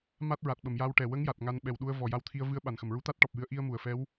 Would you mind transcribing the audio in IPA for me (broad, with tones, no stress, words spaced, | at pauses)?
ma˦˥t̚ ɹa˨˩t̚ɓə˨˩˨mja˧wʈɛ˨˩ wə˧˥ŋja˨˩t̚ ŋa˧n ɓɛ˨˩wɗu˧ə̯ vɔ˨˩ja˧˥wt̪ʰi˧ə̯ vɨ˧˥ə̯ ɓa˨˩nxə˨˩m ɹu˧˥t̪a˦˥t̚ʈɔ˨˩p̚jɨ˧˥ə̯ ʔi˧ə̯mu˨˩˨ə̯fɛ˧˥w